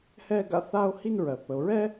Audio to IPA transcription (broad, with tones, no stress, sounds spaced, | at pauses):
h ɛ˥ ɡ a̰˥ θ a˥ o̯ h i˥ n ɹ ɜ˩ p ə˩ o̯ ɹ ɛ˥